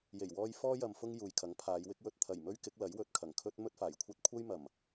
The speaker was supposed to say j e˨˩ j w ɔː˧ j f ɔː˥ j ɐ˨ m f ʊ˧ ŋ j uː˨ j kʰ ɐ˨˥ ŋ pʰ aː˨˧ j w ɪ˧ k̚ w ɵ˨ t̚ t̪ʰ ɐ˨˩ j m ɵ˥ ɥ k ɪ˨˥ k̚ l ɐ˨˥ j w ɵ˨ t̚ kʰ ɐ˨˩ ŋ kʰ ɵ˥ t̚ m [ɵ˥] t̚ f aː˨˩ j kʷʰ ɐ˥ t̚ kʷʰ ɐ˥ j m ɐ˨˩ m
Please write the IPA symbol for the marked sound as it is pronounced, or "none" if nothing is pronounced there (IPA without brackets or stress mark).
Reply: ɵ˥